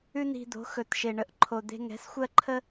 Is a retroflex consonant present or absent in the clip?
present